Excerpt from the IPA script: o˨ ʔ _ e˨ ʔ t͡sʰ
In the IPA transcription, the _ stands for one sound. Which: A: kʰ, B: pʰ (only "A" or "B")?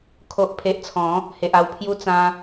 B